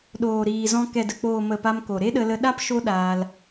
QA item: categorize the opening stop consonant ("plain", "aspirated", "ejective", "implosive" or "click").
implosive